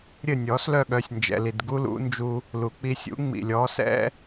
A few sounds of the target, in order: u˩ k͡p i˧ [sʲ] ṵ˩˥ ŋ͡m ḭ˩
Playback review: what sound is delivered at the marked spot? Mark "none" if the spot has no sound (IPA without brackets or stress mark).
sʲ